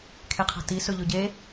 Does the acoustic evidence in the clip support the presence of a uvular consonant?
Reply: yes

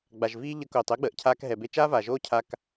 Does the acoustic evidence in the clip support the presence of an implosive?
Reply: no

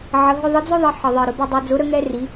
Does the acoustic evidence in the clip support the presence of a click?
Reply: no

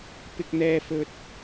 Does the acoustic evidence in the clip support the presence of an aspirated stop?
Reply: no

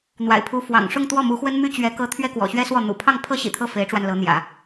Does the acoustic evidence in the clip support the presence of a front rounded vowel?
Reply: yes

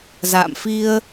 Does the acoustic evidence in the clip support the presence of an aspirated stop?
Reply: no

